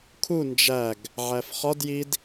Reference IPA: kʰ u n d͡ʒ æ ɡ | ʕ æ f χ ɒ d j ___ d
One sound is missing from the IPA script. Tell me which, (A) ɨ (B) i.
B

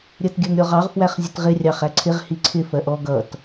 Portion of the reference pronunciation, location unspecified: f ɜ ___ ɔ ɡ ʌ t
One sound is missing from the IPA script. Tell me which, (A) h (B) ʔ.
B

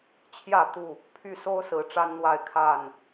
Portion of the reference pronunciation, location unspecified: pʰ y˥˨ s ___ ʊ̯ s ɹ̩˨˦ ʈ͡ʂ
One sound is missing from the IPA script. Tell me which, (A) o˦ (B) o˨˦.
A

